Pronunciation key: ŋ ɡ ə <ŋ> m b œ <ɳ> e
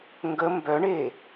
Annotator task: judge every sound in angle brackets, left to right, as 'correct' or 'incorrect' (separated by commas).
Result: incorrect, correct